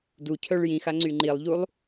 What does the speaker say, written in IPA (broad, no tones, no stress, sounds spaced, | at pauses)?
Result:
d u cʰ œ ɭ j ĩ x a ŋ͡ǀ y ŋ͡ǃ i lˠ ʎ u lˠ